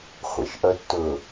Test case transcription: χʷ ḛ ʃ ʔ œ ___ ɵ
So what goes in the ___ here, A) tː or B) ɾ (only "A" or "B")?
A